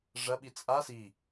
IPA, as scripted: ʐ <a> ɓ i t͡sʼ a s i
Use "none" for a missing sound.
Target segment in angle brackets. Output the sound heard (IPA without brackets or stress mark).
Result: ɐ